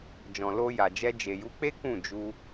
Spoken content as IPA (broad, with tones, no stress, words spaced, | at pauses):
d͡ʒɔ̃˨lo˧ja˨d͡ʒɛ˧ d͡ʒe˨ju˨˦k͡pe˦ kũ˦˨d͡ʒu˧